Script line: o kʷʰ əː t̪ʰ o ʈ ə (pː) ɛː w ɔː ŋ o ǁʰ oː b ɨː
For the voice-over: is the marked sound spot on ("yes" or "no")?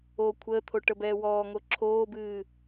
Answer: no